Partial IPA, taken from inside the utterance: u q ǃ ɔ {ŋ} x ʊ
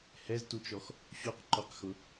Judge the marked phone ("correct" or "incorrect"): incorrect